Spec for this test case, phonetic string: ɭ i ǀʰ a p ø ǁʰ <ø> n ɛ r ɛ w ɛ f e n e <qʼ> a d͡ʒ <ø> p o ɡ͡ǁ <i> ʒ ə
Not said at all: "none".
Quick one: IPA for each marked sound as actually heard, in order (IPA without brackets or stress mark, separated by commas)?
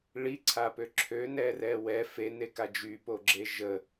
ø, k, y, e